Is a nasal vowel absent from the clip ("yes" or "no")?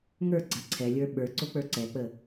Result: yes